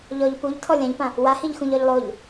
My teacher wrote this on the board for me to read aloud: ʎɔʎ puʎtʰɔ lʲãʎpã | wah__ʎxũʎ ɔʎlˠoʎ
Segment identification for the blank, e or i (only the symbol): i